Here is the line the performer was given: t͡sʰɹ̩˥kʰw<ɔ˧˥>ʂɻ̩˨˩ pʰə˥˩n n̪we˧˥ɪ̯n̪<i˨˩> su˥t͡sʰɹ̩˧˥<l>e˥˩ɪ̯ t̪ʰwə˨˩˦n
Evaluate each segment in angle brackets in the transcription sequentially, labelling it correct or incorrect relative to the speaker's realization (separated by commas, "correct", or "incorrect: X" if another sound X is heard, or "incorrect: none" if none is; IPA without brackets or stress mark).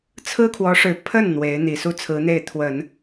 correct, correct, incorrect: n̪